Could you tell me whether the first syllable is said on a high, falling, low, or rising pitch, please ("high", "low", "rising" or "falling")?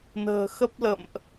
low